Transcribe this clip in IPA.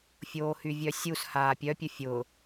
fʲ oː h y vʲ œ sʲ u s h aː pʲ œ pʲ ə fʲ ʊ

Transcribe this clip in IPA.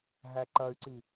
ɦ æ ǃ ɐ y̯ ǀ i

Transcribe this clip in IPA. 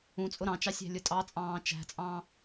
ũ t͡sʼ ʊ ɾ ɑ̃ t͡ʃ ɑ sʲ æ̤ lʲ ʊ tʼ ɑ t͡sʼ ɑ̃ː t͡ʃ æ̤ t͡sʼ ɑ̃

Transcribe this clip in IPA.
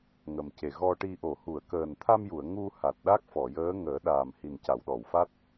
ŋ ə˨˩ m c e˨˩ ɣ ɔ˧ ʈ i˧ ʔ o˨˩˨ h u˨˩˨ ə̯ k əː˨˩ n t̪ʰ a˧ m j u˨˩˨ ə̯ ŋ u˧ h a˨˩ t̚ ɗ a˦˥ k̚ f ɔ˨˩˨ j əː˧˥ ŋ əː˨˩˦ ɗ aː˨˩ m h i˨˩ n c a˨˩˨ w ɗ ɔ˨˩˨ w f a˦˥ t̚

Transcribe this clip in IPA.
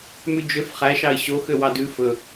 m ʉ d͡ʒ ø f χ æ ʃ ɑ ɪ̯ ɕ o x ø w ɑ d ʉ f ɵ

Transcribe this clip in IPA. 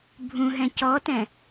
bʱ ũ ɦ ɛ̃ c ɔ t ɛ̃

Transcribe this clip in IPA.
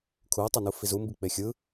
kʰ u o̯ tˤ ɯ n u f i z u m b i k͡p e xʲ ɯ

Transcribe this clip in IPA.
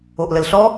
o ʔ l ə l ɬ ɔ

